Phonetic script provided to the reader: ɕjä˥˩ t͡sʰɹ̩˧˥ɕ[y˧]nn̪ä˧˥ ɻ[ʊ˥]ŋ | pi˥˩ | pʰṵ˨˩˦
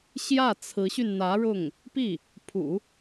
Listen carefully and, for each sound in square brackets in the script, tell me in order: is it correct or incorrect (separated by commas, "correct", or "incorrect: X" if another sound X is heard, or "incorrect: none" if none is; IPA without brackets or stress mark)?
correct, incorrect: ʊ˥˩